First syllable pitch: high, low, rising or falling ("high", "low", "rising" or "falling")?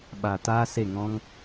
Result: low